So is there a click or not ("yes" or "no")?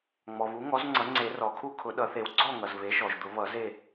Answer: yes